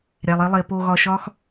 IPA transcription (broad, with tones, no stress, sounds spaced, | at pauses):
ɾʲ æ˩ lˠ e˨ lˠ e˩ p o˨ ɣ ɒ˨ ʃ ɒ˦ x